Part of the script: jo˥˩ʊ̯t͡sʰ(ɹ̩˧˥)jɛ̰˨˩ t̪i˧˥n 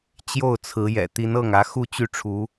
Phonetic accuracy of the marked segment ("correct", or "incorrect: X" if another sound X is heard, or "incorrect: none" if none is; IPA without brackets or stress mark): correct